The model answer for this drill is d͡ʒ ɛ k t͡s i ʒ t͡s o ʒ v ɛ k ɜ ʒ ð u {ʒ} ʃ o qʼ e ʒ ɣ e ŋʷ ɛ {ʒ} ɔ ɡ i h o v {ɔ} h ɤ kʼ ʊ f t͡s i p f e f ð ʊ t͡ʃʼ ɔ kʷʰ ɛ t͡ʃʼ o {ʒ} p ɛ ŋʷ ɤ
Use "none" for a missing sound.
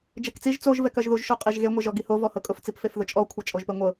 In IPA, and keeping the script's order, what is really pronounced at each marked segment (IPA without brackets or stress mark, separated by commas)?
ʒ, ʒ, ɔ, ʒ